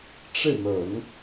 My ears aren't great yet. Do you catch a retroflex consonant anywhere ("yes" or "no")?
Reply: yes